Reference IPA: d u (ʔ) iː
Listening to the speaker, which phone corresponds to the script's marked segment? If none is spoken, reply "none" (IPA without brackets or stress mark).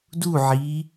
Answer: ʕ